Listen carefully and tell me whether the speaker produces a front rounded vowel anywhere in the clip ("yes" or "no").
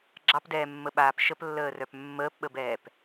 yes